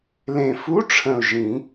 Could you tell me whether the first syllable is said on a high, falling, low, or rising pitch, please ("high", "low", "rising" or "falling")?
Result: low